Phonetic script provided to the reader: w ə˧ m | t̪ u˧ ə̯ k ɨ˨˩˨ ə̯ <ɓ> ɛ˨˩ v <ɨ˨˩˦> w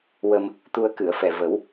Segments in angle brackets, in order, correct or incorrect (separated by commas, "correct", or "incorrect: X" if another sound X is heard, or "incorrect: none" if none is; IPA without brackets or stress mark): incorrect: f, incorrect: ə˨˩˦